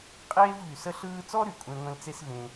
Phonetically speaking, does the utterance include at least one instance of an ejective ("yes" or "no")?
yes